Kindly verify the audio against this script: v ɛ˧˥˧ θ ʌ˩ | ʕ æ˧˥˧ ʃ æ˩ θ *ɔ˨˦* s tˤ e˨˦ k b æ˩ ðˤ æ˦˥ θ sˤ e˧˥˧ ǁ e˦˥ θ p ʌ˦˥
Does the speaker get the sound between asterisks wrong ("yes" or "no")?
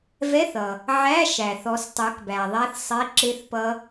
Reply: no